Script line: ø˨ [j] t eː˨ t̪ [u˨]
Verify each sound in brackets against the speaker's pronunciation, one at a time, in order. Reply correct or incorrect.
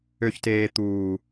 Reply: incorrect: ç, incorrect: uː˨

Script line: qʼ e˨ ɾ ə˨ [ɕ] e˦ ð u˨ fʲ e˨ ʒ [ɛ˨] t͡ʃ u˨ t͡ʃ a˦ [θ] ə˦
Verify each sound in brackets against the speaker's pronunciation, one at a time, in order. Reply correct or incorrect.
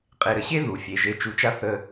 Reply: correct, incorrect: e˨, correct

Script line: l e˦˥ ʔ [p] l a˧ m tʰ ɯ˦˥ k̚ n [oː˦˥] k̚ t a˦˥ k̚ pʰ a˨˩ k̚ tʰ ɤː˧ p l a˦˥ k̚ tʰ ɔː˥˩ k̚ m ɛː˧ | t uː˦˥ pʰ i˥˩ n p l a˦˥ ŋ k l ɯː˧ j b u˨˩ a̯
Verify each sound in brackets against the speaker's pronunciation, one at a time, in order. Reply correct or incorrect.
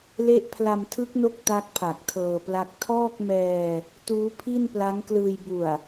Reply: incorrect: pʰ, incorrect: o˦˥

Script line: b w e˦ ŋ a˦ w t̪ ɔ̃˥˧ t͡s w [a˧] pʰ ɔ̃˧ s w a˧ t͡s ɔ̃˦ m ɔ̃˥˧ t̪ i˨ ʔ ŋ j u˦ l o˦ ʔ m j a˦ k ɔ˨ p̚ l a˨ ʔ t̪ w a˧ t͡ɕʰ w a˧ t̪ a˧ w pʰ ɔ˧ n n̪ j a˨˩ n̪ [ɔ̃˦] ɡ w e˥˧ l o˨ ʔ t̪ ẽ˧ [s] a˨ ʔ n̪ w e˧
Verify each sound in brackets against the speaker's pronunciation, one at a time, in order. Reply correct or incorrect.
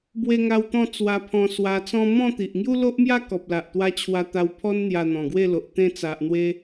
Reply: correct, incorrect: ɔ̃˨˩, incorrect: t͡s

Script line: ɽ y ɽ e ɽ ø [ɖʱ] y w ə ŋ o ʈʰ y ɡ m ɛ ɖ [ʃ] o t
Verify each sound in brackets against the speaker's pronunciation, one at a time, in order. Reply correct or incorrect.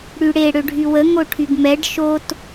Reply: correct, correct

